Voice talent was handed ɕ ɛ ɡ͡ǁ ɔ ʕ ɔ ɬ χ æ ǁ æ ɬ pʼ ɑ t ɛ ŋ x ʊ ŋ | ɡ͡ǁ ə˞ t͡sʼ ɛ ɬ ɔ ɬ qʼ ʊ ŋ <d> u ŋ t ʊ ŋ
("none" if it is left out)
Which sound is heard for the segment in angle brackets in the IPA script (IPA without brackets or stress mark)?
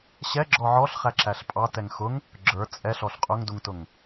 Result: d